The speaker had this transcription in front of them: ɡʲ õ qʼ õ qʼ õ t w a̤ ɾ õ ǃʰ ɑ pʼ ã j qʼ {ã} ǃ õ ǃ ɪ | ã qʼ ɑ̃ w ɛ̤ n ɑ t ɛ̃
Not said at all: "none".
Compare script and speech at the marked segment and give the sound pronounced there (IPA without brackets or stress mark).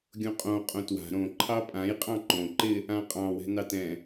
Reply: ɑ̃